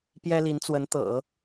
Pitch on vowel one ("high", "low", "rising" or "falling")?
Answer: high